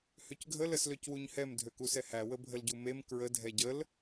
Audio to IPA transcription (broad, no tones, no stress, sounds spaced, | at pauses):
h ø c ɡʱ ə l ə s l ø c w u ɲ h ɛ m dʱ ø k u s ɛ h æ w ə bʱ ə l ɟ u m e m k ɹ ə dʱ ɛ ɟ ə l